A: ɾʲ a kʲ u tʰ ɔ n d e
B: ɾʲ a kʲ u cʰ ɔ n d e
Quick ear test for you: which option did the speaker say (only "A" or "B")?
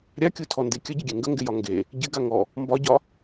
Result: A